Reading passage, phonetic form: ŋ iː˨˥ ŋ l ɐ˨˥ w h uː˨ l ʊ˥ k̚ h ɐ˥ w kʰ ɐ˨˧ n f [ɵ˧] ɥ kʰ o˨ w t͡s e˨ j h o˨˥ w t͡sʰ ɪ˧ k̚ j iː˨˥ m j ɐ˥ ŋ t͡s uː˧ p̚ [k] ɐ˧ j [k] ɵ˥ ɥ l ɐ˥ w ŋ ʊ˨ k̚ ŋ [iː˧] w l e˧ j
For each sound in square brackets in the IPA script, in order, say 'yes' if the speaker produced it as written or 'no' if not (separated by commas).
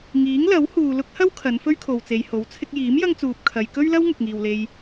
no, no, yes, no